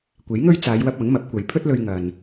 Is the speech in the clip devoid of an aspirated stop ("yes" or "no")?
no